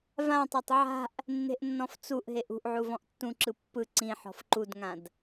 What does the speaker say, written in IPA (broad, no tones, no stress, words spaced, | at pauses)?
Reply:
vãtˤatˤ ʕa̤ʔ | nːe̤ʔnːɔ̃ft͡suʔɦeʔ ṳʔʕu vɔ̃ʔtːũǁɯ pːɯ ǀĩ ħɔ̤fǃudŋãd